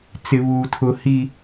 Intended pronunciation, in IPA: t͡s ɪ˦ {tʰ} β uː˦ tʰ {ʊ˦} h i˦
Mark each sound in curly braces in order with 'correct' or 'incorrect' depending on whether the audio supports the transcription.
incorrect: none, correct

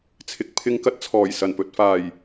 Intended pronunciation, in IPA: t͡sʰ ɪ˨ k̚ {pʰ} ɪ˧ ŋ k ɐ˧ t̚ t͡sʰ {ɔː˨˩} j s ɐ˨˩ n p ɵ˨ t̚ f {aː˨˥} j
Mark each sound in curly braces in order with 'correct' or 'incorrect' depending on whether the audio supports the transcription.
correct, correct, incorrect: aː˨˩

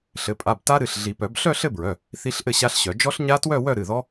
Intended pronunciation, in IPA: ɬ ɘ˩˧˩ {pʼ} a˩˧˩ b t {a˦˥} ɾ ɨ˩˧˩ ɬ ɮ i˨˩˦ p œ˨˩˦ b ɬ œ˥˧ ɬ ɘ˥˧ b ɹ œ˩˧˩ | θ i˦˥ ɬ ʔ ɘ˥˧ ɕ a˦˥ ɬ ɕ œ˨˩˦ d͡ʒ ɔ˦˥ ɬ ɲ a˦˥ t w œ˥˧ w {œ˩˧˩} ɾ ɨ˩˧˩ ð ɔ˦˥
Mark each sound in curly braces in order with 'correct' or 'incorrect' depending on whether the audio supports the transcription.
correct, correct, incorrect: œ˥˧

